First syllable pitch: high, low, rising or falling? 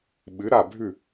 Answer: rising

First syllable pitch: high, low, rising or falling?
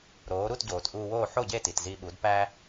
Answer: rising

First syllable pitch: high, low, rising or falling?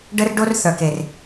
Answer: high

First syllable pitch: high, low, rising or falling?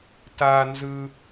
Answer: high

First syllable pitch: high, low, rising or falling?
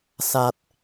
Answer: low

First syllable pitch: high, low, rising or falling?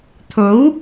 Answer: rising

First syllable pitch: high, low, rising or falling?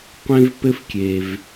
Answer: high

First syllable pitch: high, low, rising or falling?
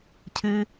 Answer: low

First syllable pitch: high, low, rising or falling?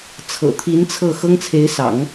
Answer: low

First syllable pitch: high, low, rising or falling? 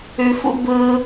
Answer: high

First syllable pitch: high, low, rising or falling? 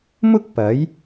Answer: high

